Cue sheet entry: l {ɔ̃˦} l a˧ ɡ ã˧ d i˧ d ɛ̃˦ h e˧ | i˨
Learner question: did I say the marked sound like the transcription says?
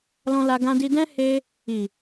no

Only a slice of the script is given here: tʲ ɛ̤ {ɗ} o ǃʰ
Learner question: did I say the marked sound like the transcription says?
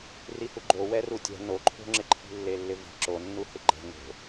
no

